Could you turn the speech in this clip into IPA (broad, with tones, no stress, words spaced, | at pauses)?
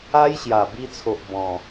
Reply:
a˦jɕja˨˩bi˧t͡sʰo˨ʔ bɔ̃˨˩